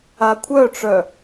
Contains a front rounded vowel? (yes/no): yes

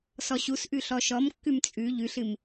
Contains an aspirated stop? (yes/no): no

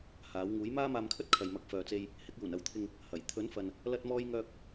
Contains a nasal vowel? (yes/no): no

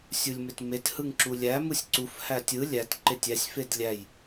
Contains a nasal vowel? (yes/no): no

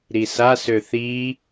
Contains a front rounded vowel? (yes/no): yes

